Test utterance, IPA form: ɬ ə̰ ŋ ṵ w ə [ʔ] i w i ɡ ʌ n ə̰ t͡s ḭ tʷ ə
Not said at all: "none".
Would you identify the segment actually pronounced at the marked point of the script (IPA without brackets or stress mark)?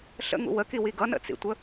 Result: k